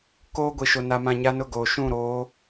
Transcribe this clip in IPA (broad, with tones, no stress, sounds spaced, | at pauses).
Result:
k oː˦ ɡʷ i˨ ʃ o˨ n a˨ m ã˨ ɲ a˦ n ʊ˦˨ ɡ oː˨ ʃ ũ˦˨ ɾ oː˨˦